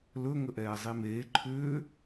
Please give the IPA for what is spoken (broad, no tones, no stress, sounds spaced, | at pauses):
l ɵ ŋ ə ʔ ɛː zˤ i m eː ǃʰ ʏː